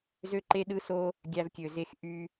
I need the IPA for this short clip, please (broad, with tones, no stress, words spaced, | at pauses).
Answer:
zø˦ǃe˦ɗɯ˦so˦ | ɡʲæ˧vkʲø˨ ze˨x ʔy˧